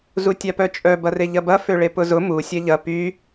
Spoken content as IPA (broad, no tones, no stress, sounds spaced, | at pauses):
z u tʲ a p œ t͡ʃʼ œ b ɐ r e ʎ ɐ b ɐ f ø ɭ e p ʊ z ʊ m u sʲ ɐ ʎ ɐ p y